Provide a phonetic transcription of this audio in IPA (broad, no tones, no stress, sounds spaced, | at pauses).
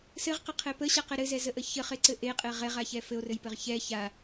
s ɘ ʁ q ə qʰ ɛ p ə ɕ a q ɘ ɾ ɘ z ɛ z ə ʔ ə ç ə χ e ǀ ɘ ʔ e qʼ ɛ ʁ ɛ ʁ a ç ɛ f ɘ o̯ r ɘ j p ɘ ʁ ç ɛ ç a